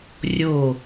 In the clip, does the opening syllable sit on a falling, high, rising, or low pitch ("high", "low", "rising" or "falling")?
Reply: falling